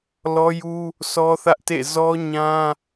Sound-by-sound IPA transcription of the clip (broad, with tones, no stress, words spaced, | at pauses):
lɔ˦ju˦ | sʰɔ˦θä˦ʔtḛ˦˨ zɔ˦ɲã˦